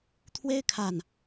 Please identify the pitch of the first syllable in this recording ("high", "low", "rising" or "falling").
high